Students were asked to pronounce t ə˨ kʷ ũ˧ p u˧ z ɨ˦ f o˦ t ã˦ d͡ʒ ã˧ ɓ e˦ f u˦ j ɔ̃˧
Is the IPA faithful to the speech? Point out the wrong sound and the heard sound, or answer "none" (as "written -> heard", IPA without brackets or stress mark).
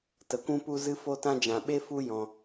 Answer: none